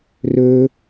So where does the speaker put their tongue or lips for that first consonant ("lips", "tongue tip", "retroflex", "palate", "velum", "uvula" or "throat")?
tongue tip